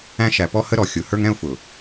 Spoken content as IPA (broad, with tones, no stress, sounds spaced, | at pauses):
æ̃˦ ʃ æ˨ p ɔ˦ h ə˦ ɾ ɔ˨ xʲ ʊ˨˦ h ə˞˦ ŋ ɛ̃˦ ʊ̯ f ʊ˨